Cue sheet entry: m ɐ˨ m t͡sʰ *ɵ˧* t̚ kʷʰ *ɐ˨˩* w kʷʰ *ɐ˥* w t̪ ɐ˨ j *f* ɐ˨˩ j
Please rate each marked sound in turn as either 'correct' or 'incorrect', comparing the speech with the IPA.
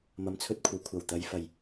correct, incorrect: ɐ˨, incorrect: ɐ˨˩, correct

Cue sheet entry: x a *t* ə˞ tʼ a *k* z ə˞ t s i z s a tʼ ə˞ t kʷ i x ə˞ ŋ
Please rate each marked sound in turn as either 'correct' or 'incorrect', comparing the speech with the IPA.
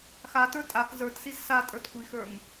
correct, correct

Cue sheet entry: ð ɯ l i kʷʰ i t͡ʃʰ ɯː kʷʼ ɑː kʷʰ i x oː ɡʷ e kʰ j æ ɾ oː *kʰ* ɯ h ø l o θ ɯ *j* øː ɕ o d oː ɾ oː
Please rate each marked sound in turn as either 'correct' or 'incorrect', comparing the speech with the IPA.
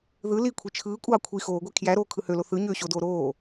correct, incorrect: ɲ

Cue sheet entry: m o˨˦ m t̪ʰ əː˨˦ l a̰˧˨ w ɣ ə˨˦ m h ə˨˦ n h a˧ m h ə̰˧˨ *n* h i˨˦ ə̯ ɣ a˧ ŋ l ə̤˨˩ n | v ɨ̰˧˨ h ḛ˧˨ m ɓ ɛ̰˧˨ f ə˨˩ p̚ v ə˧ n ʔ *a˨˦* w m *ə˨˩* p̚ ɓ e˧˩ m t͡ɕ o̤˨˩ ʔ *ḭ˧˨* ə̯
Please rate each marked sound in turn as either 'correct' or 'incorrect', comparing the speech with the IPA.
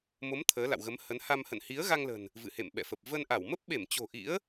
correct, incorrect: a˧˩, incorrect: ə˦˥, incorrect: ḭ˧˥

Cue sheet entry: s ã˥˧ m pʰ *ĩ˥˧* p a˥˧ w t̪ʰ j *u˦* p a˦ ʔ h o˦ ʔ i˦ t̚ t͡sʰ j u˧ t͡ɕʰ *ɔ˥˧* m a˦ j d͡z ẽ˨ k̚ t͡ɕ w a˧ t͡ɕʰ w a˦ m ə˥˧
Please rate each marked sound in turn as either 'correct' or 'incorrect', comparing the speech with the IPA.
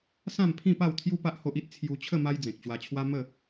correct, correct, incorrect: ə˥˧

